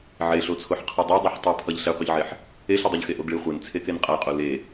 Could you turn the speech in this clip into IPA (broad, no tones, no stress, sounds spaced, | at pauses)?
ʕ e ɬ o t͡sʰ o ħ qʰ ɯ dˤ o dˤ e ħ tˤ i pʰ ʌ ʎ ɬ e qʷ ʌ ʎ ʕ e ħ | e ɬ ɯ dˤ o ʎ x e ʔ o ɡ ɭ i χʷ e n t͡sʰ e k e n qʼ a qʼ o l e